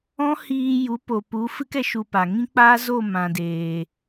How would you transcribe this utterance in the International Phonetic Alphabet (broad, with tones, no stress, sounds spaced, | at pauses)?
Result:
ɔ̃˦ h iː˧ j u˨˦ p o˨ p u˨˦ f ɨ˦ k ɛ˧ ʃ u˧ p a˨ ŋ ĩ˦ k͡p aː˦ z o˦˨ m ã˨ d eː˨